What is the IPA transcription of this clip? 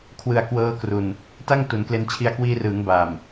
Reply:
kʰ w ɯ˨˩ a̯ k w ɤː˦˥ k r u˨˩ n | t a˥˩ ŋ t u˩˦ n k l e˧ n t͡ɕʰ i˧ a̯ k w iː˧ r ɯː˩˦ ŋ b a˨˩ m

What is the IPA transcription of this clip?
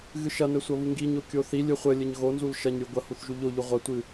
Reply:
ɣ ɨ ʃ ɐ n ɘ sʷ ɐ β u ŋ ɡ i ɲ o kʲ o θ i lʲ ɨ χʷ ɘ lʲ ɘ ɲ ɣ o n z u l ʃ ɐ ɲ ɾʲ u ɡʷ ɐ h u θ ʒ u ʎ o ʎ u ʁʷ ɐ tʷ ɨ

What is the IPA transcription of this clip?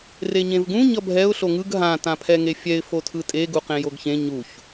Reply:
r e ɲ ẽ v ɡ ũ ɲ ʌ bʱ ɛ ʊ̯ ɬ o ŋ ɯ ɡ ɦ ã t ã pʰ ɛ ŋ e fʲ ɛ ɪ̯ f o tʰ ɯ tʼ e ɡ u q ẽ j o ɡ ç ẽ ɲ u ç

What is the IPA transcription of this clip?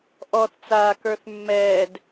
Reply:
ʔ ɔ θ t͡s aː k ə˞ θ mː ɛː d

